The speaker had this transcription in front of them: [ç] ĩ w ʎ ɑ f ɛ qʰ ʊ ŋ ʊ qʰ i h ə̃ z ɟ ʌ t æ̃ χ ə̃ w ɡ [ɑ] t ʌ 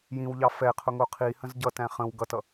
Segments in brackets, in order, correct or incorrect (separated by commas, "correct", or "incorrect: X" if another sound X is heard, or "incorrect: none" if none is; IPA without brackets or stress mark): incorrect: j, incorrect: ʌ